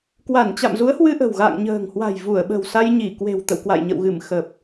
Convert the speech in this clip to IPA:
kwa˧˩nt͡ɕa̰˧˨mzu˨˦ə̯ hwɨ˧ʔə̤˨˩wɣa̰ː˧˨ŋ ɲə̤ː˨˩ŋhwa̤˨˩j vu˧˩ə̯ɓə̤˨˩w sa˧jɲi˧˩kwe̤˨˩wt̪ə̰˧˨w kwa̰˧˨jɲə̰˧˨wɣɨ˧˩m xə˨˩p̚

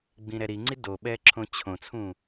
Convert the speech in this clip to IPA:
ɡ͡bĩɾɛɾiŋ͡ǀi doɓɛ ǁʰõt͡ɕʰõt͡sʰũ

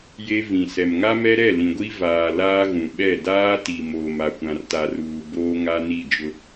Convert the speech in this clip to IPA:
je˦ vĩ˨sɛ˨m ŋa˦mɛ˦ɾɛ˦˨ lĩ˨ɡʷi˦ vaː˨ laː˦ɣũ˨ɓɛ˦˨ daː˦ti˨ moː˨ma˨kʷã˨rta˨ ruː˨ boː˦ŋa˦ ni˦˨d͡ʒʊ˦

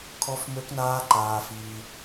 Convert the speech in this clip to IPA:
kʰɔ˦fmø˦knaː˦ ǃaː˧fiː˧

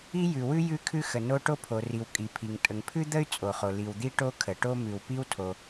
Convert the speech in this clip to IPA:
i˥jʉ˩wʉ˥ jʉ˥kʰʉ˥xə˩no˥ ʈo˥pʰo˩ri˩w kʼi˩pʰi˩ŋ tʼə˩ŋpʰʉ˥d̪ə˥y̯ t͡sʼo˩χo˩ li˩wd̪i˥ ʈo˥kʰə˩ʈo˥ mʉ˩wpi˥wtʰo˩

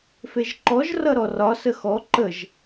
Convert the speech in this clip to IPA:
feʒǃɔʒ rʌɾɔrɒ səxɔ ǃəʒ

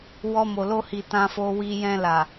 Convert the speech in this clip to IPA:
wɔ˧mo˨ lo˧hi˨ tã˧fo˧wi˧ jɛ̃˧la˨

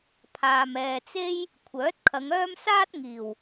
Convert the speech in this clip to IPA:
pʰaː˨mɛː˨t͡se˥j | kʷʰœː˨˥t̚kʰɐ˨˧ŋœː˥m saː˥t̚ŋiː˨˩w

